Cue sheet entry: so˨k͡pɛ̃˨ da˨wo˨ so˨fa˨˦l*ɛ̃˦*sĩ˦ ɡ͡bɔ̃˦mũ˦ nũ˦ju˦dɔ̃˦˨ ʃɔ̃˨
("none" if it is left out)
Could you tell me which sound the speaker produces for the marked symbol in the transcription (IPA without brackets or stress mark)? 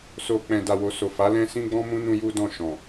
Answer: ɛ̃˦